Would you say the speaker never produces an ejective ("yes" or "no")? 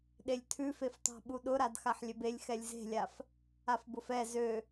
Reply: yes